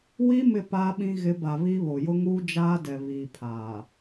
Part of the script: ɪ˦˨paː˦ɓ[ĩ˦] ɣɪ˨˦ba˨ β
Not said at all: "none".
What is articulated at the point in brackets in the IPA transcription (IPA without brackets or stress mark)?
ĩ˦